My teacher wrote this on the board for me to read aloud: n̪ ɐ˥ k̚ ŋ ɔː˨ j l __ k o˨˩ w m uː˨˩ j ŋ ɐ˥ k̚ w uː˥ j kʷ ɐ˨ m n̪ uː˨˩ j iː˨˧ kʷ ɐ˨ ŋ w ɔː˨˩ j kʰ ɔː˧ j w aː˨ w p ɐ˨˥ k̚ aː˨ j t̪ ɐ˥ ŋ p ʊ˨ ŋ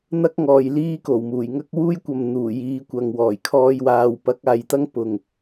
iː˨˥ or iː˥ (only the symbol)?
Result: iː˥